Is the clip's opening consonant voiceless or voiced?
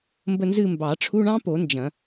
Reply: voiced